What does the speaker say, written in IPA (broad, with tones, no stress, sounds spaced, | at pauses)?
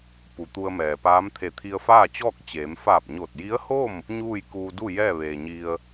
p u˩ t̪ u˧ ə̯ m ɛː˩ p aː˧˥ m t̪ʰ e˧˩ t̪ʰ i˧ ə̯ f aː˥˨ t͡ɕ ɔː˥˨ k̚ t͡ɕ eː˩˧ m f aː˧˩ p̚ ɲ o˧˩ t̚ j i˧˥ ə̯ h o˥˨ m | ɲ uː˥˨ j k uː˧ d u˥˨ j ɛː˥˨ ʋ eː˩ ɲ i˧ ə̯